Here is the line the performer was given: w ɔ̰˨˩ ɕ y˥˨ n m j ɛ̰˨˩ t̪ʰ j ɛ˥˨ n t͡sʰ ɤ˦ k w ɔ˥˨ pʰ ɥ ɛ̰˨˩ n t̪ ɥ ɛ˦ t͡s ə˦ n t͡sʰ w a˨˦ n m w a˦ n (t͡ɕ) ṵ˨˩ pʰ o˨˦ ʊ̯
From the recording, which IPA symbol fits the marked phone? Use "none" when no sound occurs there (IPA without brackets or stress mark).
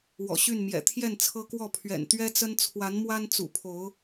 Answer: t͡s